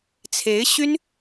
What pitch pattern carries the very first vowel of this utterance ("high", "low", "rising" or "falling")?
rising